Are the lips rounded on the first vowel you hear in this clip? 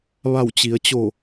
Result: no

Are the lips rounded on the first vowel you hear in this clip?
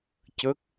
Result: no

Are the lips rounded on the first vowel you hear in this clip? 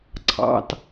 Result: no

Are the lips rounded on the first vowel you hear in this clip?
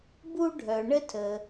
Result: yes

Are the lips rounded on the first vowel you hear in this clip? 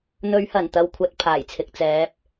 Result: yes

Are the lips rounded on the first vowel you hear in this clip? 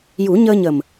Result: yes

